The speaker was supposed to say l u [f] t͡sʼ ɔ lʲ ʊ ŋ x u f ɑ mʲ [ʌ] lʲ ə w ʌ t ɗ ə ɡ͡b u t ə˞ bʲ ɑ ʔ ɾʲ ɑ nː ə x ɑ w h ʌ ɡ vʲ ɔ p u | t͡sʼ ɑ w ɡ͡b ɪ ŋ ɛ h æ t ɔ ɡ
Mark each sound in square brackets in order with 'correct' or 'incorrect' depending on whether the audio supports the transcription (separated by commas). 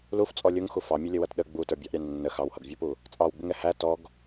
correct, correct